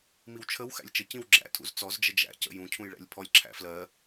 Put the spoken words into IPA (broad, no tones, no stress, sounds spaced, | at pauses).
m i w t͡ʃʰ ə w x æ̰ lʲ t͡ʃ ə c ĩ w ɡ͡ǁ æ̰ tʰ ṵ z t͡s ɔ z d͡ʒ ə d͡ʒ æ̰ c ə̰ j ũ cʰ ũ j ɭ æ̰ lʲ pʰ ɔ lʲ ǁʰ æ̰ f l ɜ